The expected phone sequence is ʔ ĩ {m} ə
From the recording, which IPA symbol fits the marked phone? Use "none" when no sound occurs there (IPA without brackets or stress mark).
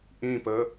p